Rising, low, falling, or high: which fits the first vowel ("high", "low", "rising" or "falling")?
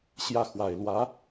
falling